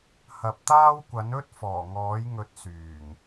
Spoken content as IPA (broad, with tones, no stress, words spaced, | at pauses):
hɐ˨p̚t̪aː˥wkʷɐ˨˥n ɵ˥t̚ fɔː˨˩ŋɔː˨˥jŋɵ˨˥t̚ syː˨˩ŋ